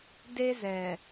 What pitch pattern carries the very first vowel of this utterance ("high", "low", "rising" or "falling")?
high